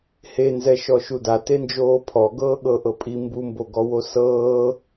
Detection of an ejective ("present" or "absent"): present